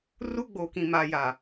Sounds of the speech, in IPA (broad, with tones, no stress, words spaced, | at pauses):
ru˦ɡ͡boː˨kĩ˨ maː˨ jaː˨